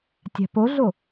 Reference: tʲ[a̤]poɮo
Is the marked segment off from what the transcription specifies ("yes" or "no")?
no